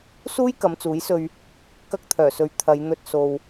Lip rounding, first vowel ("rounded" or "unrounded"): rounded